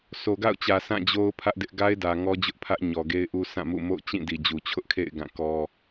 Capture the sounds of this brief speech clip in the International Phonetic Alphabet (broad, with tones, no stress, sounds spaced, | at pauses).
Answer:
sʰ o˨ ɡ a̰˦˨ ʊ̯ t͡ɕ ä˨ sʰ ã˦˨ d͡ʑ o˦ ʊ̯ pʰ ä˦ ʔ d ɪ˦ ʔ ɡ a˦ ɪ̯ d ä˨ ŋ ɔ˦ d͡ʑ ʊ˦ ʔ pʰ ä˦ ʔ ɲ ɔ˨ ɡ e˦ ɪ̯ ʔ u˦ sʰ ã˦˨ m ṵ˦˨ m o̰˦˨ ʊ̯ t͡ɕ ĩ˦˨ d i˨ d͡ʑ u˨ t͡ɕʰ ʊ˦ ʔ kʰ ḛ˦˨ ɪ̯ ɡ ã˦˨ k ɔ˦